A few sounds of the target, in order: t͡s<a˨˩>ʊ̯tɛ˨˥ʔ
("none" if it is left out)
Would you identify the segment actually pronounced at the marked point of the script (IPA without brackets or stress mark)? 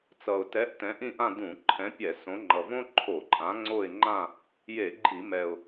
ʌ˨˩